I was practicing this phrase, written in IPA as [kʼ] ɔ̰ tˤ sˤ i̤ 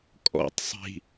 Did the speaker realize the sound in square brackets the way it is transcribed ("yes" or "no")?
yes